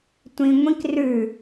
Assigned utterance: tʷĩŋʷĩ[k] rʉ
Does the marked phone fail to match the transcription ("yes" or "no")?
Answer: no